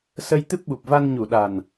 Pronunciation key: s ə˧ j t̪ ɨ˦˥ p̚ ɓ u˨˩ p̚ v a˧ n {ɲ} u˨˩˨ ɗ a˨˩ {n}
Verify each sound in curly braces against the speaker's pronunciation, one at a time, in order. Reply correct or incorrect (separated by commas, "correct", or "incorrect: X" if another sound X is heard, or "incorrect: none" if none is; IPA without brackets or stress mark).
correct, correct